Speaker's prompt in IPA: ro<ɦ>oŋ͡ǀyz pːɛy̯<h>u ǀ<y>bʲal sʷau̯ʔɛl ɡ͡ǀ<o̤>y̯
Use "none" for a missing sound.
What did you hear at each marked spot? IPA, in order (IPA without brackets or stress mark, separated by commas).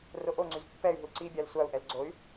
ʔ, ɦ, i, o